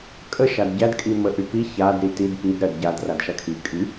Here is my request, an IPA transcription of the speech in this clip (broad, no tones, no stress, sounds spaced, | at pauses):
kʼ ə ʃ a d ɟ æ d kʼ i m ə ʔ y p i ç a d ɾ i t i d p i d ɾ ɜ d ɟ a d r a d ʃ a kʰ i kʼ y